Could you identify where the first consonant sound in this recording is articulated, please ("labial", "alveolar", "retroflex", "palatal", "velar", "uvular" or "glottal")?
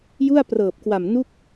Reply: palatal